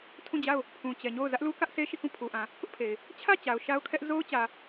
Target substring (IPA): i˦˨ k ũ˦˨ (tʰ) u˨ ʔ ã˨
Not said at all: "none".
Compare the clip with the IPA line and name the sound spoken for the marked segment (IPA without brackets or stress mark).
pʰ